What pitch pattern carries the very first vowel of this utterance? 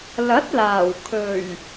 rising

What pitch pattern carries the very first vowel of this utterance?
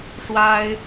high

